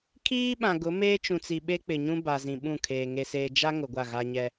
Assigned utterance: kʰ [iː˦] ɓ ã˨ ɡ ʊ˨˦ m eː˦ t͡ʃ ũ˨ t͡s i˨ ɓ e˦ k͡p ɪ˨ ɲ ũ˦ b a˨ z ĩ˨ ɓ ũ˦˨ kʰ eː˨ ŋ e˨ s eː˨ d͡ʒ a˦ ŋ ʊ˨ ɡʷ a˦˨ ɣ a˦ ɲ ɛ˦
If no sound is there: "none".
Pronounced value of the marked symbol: iː˦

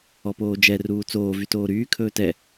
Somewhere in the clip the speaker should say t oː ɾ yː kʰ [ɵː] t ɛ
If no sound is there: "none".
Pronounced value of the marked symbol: ɵː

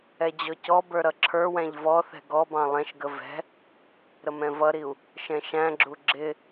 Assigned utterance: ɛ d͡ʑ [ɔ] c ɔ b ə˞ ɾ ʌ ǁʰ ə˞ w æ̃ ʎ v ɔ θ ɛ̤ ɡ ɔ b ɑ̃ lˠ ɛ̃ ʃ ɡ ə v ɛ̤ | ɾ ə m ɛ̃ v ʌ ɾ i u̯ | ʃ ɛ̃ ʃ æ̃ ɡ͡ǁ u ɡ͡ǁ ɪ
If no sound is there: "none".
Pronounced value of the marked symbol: ɔ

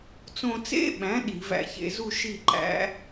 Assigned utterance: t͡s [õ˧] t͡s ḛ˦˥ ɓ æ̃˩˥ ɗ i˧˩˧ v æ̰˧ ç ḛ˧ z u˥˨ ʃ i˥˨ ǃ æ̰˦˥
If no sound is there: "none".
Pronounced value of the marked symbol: õ˧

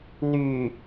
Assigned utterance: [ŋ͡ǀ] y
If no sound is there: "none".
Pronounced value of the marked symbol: n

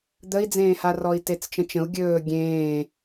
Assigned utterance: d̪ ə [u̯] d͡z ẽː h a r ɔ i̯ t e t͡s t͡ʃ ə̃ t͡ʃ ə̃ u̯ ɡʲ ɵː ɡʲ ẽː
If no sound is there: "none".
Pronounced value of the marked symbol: i̯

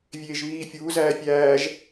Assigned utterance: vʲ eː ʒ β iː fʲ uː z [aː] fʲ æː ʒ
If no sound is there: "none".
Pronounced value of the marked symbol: æː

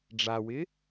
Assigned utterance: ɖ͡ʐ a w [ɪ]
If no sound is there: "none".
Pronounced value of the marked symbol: ɪ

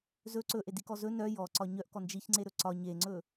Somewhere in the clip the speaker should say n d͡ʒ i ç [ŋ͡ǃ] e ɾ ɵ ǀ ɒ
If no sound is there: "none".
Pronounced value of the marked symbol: ŋ͡ǀ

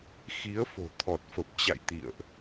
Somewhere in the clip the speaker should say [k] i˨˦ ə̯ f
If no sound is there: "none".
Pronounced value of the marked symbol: x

